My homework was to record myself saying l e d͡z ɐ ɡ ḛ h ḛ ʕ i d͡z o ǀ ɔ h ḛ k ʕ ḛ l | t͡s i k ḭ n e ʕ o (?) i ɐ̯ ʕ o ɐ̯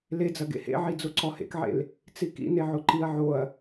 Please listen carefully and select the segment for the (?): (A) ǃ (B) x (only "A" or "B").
A